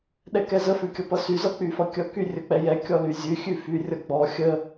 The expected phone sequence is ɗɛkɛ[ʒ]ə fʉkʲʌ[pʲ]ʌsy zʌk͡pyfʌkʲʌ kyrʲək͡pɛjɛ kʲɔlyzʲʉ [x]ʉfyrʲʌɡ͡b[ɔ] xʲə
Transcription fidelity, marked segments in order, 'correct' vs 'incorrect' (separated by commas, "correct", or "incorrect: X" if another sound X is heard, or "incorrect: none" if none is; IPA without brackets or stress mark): incorrect: z, incorrect: p, incorrect: xʲ, correct